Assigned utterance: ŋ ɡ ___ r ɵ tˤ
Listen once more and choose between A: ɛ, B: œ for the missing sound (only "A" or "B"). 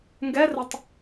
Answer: A